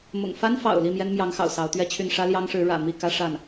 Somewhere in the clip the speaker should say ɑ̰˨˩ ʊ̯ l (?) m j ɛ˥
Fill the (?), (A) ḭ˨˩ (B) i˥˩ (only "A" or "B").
B